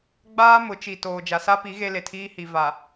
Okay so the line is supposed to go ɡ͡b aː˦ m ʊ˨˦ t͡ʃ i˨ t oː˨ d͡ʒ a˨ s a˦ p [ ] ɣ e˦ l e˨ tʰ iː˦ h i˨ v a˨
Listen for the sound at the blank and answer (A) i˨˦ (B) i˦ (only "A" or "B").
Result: A